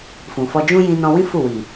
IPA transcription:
f ũ˨ f ɔ˧ d͡ʒ ũ˦ j ĩ˧ n ɔ̃˧ w ĩ˦ f u˦˨ w i˨

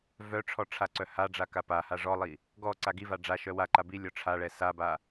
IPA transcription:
v œ ʈ͡ʂʰ ɔ ʈ͡ʂʰ a ǀ œ h a ɖ͡ʐ a k a p a h a ʐ ɔ lˠ i | ɡ ɔ ǀ a ɡ i v a ɖ͡ʐ a ʃ œ w a ǃ a b i lʲ ɔ ʈ͡ʂʰ a ɭ ɛ s a b a

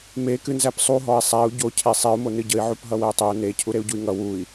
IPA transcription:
m e k ɨ n z æ p sˤ u ɦ ɔ i̯ sˤ æ u̯ ɟ o cʰ e sˤ e u̯ m o n ɨ ɟ ə i̯ ʕ u p ɦ ʌ w ə i̯ tˤ e u̯ n e cʰ u ɾ e u̯ ɟ u i̯ ŋ ʌ w u i̯

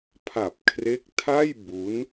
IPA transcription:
pʰ a˨˩ p̚ kʰ r e˦˥ k̚ tʰ a˥˩ j b u˦˥ n

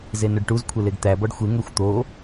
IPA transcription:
z e n ɵ ɖ ʈ u z kʷʰ e l e ɡ t̪ æ b ɔ ɖ xʷ e ŋ ø xʷ t̪ o

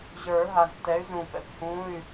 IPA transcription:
ʑ ə˞˨˩˦ ɦ a˨ z tː ɛ˨˥ y̯ z ũ˨ p ɛ̰˨˩˦ p h ũ˧˥˧ y̯

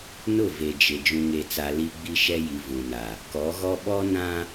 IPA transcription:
n ʊ˦˨ v e˨ d͡ʒ ɪ˨ d͡ʒ ũ˨ ŋ e˨ t͡s a˨ l i˦ ɡ͡b i˦ ʃ ɛ˦ j i˨ v ũ˨ n a˨ | k ɔ˨˦ ɣ ɔ˦ ɓ ɔ˦ n ã˦

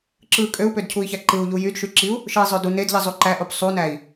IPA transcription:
ǁ ɯ kʼ ø u̯ p ø d cʰ u i̯ ç æ ǃ ɯ u̯ ʎ u j y d ʃ y ǁ i u̯ | ʃ ɯ i̯ zˤ ø d u n e d ʎ i zˤ u ǃ æ ʔ o p sˤ u n æ i̯

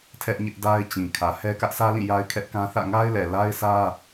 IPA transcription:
tʰ ɛ˦ ʔ ɲ ɪ˦ ʔ d a˦ ɪ̯ t͡ɕ ĩ˨ kʰ ä˨ h ɛ˦ k ä˦ ʔ s ä˦ l ĩ˦˨ j a˦ ɪ̯ kʰ ɛ˦ ʔ k ã˦ θ ä̰˦˨ ŋ a˦ ɪ̯ l ɛ˨ l a˦ ɪ̯ s ä˦

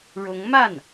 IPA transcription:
ɻ ʊ˧˥ ŋ m a˥˩ n

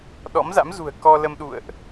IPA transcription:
ɗ ɔ̰˧˥ m z a̰˧˥ m z ṳ˨˩ ə̯ k ɔ˧ l ə˧ m ɗ ṵ˧˨ ə̯ ʔ

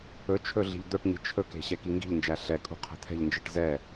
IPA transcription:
ɵ t͡ʃʰ ɵ ɮ i̤ ʎ d̪ ɵ ʈ ɲ i̤ t͡ʃʰ ɵ k e̤ ɕ ɛ k i ŋ ɡ i̤ ʎ n d͡ʒ æ ɬ ɛ kʼ ṳ qʰ ɛ̤ t̪ʰ ɛ̤ ʎ n d͡ʒ i ʈ z ɛ

